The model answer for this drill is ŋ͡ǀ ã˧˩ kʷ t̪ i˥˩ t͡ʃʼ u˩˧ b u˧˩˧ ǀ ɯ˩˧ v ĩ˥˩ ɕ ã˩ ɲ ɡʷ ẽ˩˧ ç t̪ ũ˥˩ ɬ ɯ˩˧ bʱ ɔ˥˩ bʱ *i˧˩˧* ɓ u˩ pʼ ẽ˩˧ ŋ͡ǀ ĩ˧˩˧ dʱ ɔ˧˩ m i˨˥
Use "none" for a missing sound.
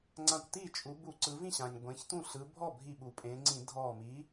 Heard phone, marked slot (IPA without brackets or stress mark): i˧˩